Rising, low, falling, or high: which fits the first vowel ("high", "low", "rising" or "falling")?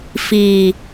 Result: low